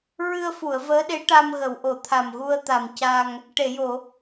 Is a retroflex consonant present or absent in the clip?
present